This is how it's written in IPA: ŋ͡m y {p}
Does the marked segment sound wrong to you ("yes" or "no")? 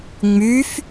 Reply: yes